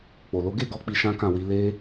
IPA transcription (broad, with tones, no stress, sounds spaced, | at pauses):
k͡p o˨ l o˨˦ ɡ e˦˨ ɡ ɔ˨˦ k͡p i˧ ʃ ã˦ k ã˦˨ w i˨˦ l e˦